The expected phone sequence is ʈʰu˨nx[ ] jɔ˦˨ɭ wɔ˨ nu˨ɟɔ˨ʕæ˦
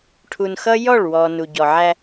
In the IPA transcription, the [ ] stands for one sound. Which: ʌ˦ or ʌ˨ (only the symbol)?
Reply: ʌ˦